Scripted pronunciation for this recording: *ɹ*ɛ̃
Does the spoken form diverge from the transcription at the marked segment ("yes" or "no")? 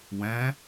yes